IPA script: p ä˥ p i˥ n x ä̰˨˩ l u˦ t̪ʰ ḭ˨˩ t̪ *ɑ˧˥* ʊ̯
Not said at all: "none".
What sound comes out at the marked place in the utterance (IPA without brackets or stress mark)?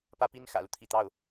ɑ˥˩